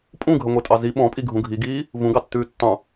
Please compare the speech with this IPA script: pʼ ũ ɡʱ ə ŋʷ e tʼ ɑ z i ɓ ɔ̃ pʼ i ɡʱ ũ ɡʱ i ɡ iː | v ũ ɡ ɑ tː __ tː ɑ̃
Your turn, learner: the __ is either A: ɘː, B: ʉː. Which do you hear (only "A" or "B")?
B